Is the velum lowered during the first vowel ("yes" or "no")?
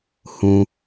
yes